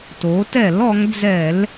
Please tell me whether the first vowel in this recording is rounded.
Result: yes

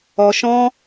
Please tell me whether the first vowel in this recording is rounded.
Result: yes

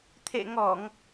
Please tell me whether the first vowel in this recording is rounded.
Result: no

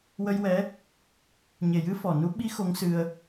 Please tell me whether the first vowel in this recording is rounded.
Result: no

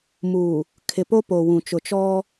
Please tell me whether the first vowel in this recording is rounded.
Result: yes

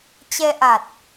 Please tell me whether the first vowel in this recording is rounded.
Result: no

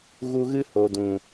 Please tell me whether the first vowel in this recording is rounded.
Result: yes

